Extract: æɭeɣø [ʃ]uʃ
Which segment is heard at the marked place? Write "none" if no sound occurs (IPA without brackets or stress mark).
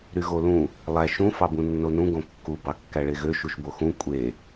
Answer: ʃ